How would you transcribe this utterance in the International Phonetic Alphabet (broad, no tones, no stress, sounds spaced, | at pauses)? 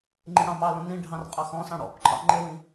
ŋ͡ǃ ĩ ɽ ɑ̃ m ɑ l õ n ĩ ɖʱ ɑ̃ r qʼ ɑ x ɔ̃ s ɑ̃ ɽ ɔ̰ p ǃʰ ɑ̰ ŋ͡ǃ e w ĩ